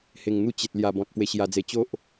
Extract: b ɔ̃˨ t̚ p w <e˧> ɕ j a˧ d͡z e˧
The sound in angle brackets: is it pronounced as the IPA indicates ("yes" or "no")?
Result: yes